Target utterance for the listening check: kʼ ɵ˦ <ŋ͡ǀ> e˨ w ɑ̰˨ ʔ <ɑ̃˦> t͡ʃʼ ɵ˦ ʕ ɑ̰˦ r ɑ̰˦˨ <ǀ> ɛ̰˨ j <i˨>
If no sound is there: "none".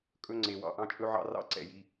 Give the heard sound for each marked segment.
ŋ͡ǀ, ɑ̃˦, ǀ, i˦

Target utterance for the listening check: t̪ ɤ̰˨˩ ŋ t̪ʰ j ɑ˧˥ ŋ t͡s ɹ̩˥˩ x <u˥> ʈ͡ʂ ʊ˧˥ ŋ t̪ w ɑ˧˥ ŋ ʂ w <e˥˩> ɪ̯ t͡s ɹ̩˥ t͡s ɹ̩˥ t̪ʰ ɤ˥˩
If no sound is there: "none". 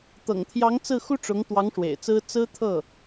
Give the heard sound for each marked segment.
u˥, ḛ˨˩

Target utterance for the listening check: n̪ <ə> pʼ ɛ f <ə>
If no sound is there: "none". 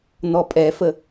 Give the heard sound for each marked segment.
ɔ, ə

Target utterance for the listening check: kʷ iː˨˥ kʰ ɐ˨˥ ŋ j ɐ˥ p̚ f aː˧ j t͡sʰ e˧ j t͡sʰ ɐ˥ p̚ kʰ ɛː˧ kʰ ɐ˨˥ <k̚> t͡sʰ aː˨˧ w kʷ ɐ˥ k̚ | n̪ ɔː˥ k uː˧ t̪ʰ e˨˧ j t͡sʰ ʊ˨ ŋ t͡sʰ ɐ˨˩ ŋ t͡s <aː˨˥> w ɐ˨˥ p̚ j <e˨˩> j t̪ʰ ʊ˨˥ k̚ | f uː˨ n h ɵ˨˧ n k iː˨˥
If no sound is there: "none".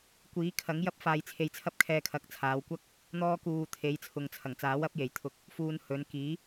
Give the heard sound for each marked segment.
k̚, aː˨˥, e˨˩

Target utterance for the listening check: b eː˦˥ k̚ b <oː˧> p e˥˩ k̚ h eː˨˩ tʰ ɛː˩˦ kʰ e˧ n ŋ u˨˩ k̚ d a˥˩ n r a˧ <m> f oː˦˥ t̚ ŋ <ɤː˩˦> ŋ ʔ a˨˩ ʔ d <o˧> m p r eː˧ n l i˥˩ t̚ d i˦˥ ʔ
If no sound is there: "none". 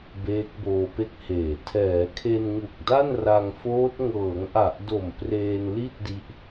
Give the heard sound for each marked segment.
oː˧, ŋ, ɤː˩˦, o˨˩

